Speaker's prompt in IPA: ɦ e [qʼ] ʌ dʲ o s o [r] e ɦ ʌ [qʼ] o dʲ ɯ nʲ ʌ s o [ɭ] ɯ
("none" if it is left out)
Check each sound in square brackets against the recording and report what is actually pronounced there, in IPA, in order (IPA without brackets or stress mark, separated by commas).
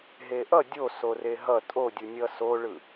ʔ, r, tʼ, ɭ